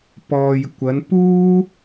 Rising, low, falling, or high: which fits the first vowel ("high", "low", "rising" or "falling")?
low